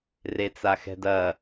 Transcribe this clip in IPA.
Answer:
r e t͡s a x ɛ̤ d ɐ

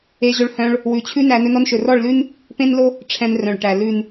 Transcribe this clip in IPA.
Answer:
e˧ ʑ ɵ˧ ɭ h œ̃˧ ɭ | w ʉ˨ t͡ɕʰ ʉ˧ n æ˧ n ɵ˧ n ɔ˧ n ʃ ɵ˨ r ɔ˦˨ ɭ l ʉ˦ n | p ẽ˦ n l o˦ | ʈ͡ʂʰ ɛ̃˧ n r œ̃˨ ɭ ʈ æ˨ l ʉ˨ n

